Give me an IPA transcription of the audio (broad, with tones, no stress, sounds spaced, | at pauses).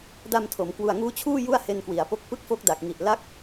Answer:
d a˧ m tʰ o˩˦ m k w u˨˩ a̯ ŋ uː˦˥ t͡ɕʰ uː˥˩ j u˥˩ a̯ h e˧ n k w i˩˦ a̯ p o˦˥ k̚ p ɯ˥˩ k̚ f o˦˥ k̚ d a˨˩ k̚ ŋ i˨˩ ʔ l a˦˥ k̚